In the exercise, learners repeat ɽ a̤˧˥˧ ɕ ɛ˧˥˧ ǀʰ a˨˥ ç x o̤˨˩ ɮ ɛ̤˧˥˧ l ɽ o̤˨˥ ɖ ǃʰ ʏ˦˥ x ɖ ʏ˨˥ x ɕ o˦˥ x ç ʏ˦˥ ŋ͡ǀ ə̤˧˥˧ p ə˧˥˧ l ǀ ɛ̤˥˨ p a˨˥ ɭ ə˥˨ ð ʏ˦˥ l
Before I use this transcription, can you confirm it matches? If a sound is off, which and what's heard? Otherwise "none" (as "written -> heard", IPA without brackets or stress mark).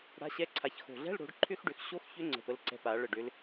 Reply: ð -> ɖ